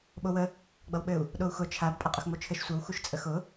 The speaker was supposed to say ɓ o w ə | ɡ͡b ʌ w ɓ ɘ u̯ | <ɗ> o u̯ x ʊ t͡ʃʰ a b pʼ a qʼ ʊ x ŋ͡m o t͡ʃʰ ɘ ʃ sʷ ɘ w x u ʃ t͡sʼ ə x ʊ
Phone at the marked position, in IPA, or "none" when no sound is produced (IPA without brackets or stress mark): ɗ